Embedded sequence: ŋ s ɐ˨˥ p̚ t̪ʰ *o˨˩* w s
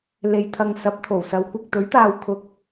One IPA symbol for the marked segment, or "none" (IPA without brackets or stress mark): o˨˩